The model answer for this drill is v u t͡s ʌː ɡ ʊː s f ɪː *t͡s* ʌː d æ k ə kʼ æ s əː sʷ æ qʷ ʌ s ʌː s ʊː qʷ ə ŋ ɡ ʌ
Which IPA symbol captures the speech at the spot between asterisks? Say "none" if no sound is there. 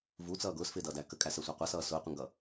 d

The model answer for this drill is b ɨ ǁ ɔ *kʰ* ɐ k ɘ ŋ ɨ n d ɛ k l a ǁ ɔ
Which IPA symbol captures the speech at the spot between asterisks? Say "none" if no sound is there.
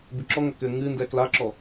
ŋ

